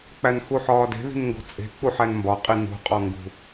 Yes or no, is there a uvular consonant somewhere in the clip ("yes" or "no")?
yes